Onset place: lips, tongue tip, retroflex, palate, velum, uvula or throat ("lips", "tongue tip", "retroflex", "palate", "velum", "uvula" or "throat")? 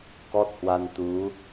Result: velum